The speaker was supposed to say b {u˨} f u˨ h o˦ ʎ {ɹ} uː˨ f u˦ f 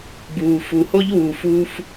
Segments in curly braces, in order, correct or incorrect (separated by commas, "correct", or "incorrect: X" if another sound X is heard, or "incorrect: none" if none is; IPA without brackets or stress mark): incorrect: uː˨, incorrect: w